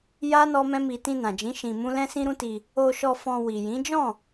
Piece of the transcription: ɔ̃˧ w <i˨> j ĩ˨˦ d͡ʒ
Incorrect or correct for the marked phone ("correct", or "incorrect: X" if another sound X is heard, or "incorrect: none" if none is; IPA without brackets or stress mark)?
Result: correct